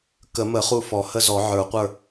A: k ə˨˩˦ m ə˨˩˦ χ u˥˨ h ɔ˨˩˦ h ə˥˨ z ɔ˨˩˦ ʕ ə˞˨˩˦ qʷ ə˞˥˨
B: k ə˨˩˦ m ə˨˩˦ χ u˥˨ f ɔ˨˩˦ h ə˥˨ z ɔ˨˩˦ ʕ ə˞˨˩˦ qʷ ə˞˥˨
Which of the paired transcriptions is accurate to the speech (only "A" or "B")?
B